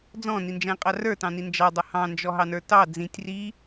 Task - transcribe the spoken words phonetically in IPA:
d͡z ɔ̃ n i n d͡ʒ æ̃ qʼ ɑ r ə˞ t ɑ̃ n i n d͡ʒ ɑ dˤ ʊ h ɑ̃ n d͡ʒ ɔ ɦ ɑ n ə˞ t ɑ d͡z ĩ tʲ r i

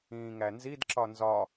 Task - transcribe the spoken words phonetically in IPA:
ĩː ŋ æ n z i d ǁ ɒ n z ɒ

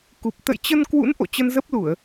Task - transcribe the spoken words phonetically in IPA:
k u˨˩ p̚ t̪ ə̰˧˨ j t͡ɕ ə˧ n k w ṵ˧˥ n ʔ o̰˧˨ t͡ɕ ə˧ n z ə˦˥ p̚ l u˧˩˨ ə̯

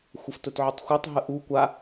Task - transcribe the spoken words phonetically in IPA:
xʷ ə f t ɵ t ʕ ɵ tˤ xʷ ɜ tˤ ɦ ə ʔ u kʷ a

